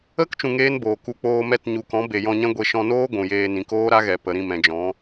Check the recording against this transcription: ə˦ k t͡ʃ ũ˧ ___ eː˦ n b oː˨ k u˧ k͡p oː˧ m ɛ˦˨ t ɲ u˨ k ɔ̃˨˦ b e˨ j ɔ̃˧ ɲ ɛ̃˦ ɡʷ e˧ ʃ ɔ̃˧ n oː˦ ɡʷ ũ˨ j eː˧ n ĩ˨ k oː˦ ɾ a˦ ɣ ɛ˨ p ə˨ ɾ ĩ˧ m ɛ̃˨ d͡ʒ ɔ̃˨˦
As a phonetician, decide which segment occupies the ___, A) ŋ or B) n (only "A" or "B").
A